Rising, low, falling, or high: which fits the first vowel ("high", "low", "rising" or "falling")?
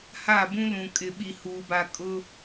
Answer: falling